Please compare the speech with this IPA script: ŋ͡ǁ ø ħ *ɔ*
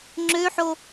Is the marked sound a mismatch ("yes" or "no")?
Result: yes